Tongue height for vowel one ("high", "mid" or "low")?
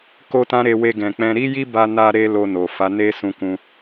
mid